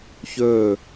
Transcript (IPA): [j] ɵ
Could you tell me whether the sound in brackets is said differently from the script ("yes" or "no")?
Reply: yes